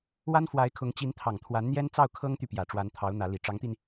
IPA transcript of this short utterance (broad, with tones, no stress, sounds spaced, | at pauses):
w a˥ n f w a˧˥ ɪ̯ kʰ ʊ˧˥ ŋ t͡ɕ i˧˥ n t̪ʰ ɑ˨˩ ŋ t̪ʰ w a˧˥ n n̪ j ɛ˥ n t͡s ɑ˥˩ ʊ̯ kʰ ɤ˥ ŋ t̪ y˨ p j ä˨˩ ʈ͡ʂ w a˧˥ n t̪ʰ ɑ˧˥ ʊ̯ n̪ ä˧˥ l i˨˩ ʈ͡ʂ ɑ˧˥ ŋ t̪ i˧ n